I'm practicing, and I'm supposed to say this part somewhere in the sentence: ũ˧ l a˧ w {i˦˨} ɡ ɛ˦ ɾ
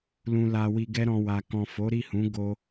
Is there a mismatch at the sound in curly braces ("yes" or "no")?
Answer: yes